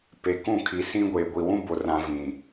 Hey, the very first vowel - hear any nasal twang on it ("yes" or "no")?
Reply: no